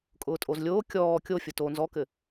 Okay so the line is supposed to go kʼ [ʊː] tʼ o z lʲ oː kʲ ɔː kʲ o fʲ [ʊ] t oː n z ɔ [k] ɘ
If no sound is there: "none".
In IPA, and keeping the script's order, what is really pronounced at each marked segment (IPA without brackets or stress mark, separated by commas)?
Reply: ʊː, ʊ, k